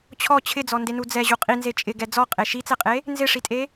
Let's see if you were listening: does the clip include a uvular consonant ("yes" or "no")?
yes